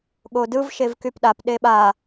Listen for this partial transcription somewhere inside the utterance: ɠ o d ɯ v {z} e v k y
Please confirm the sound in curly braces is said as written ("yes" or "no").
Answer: no